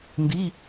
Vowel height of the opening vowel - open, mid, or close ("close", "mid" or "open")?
close